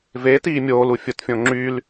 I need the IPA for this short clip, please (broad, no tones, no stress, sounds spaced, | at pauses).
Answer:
v eː t iː mʲ oː l u fʲ ʊ t fʲ õ ŋ͡ǁ y l